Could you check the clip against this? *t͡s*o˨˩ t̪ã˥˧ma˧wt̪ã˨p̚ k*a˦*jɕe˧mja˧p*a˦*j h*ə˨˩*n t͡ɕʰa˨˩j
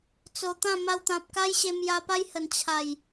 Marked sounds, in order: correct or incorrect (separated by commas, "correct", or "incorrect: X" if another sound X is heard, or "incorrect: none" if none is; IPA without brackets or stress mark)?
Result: correct, correct, correct, correct